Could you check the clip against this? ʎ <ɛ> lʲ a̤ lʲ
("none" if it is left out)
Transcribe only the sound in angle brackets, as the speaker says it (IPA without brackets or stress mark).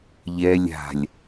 ɛ